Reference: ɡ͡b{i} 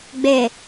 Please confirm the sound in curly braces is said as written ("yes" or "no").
no